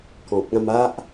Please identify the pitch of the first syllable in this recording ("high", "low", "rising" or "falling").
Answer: low